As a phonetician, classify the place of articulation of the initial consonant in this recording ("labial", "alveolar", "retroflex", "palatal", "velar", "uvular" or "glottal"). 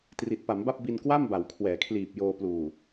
alveolar